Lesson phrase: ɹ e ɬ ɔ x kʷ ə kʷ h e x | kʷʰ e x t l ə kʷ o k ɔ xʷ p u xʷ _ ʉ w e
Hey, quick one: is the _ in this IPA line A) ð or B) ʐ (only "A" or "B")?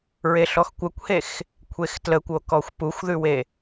A